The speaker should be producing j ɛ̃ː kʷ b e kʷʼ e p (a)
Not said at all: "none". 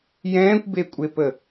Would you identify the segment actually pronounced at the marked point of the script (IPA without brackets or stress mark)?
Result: ə